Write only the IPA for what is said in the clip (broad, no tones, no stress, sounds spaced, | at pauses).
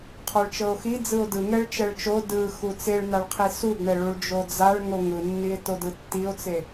qʰ ɔ ɭ t͡ʃ ɤ o̯ x i d͡z ɯ o̯ d ɯ ŋ ɛ ɭ t͡ʃ ɛ ɭ t͡ʃ o d ɯ x u t͡s e ɭ n a ɭ qʰ i s u ɡ ɳ ɛ ɭ u ɭ d͡ʒ o d͡z a ɭ ŋ o ŋ ɯ nː i e̯ t o d ɯ tː i o̯ t͡s e